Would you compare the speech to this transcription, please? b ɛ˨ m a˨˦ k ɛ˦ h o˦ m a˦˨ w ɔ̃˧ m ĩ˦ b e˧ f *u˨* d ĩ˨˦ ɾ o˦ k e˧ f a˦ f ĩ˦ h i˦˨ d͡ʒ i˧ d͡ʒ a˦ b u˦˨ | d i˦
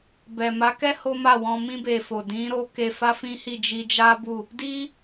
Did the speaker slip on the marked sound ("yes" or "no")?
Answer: yes